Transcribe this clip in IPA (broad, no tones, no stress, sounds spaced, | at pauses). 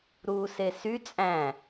ɾ uː s e s y t͡sʼ æ̃